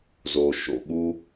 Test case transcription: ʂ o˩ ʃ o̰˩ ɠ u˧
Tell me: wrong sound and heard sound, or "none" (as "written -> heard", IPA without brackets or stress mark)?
ʂ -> z